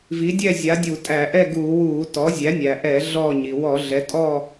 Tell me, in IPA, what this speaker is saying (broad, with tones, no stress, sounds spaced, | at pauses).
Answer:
v i˩˥ dʲ ɛ˥˨ zʲ a˩˥ dʲ u˧˩˧ tʼ æ˧˩˧ ʔ ɛ˥˨ ɡ uː˧˩˧ w uː˧˩˧ t ɔ˩˥ zʲ æ˩˥ nʲ æ˩ ʔ ɛː˧˩˧ ɮ ɔː˥˨ ɲ i˩ w ɔ˧˩˧ ɮ ɛ˩˥ tʼ ɔː˥˨